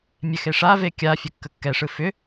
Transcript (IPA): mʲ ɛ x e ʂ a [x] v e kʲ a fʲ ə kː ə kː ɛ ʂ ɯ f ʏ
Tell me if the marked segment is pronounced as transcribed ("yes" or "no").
no